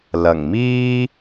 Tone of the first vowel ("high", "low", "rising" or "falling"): low